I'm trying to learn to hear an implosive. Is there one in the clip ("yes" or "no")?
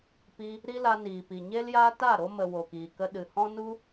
yes